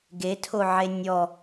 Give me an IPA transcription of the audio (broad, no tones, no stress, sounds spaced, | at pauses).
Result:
ɡ e tʰ o ʕ e nʲ ɔ